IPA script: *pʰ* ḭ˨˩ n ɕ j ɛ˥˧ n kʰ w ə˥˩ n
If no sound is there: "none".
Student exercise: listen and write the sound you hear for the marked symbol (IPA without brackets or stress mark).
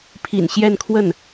pʰ